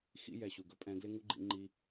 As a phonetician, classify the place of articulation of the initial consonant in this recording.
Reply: velar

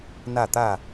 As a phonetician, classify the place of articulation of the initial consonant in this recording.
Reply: alveolar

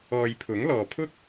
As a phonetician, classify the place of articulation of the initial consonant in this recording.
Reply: palatal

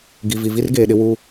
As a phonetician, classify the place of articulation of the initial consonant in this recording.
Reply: velar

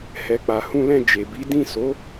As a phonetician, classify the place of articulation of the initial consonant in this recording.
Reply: glottal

